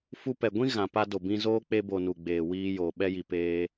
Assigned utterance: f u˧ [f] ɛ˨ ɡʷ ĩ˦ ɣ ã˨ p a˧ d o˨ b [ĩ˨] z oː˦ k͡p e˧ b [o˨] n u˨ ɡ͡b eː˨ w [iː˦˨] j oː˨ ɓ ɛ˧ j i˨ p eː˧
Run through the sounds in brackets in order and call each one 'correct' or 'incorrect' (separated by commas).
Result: incorrect, incorrect, correct, incorrect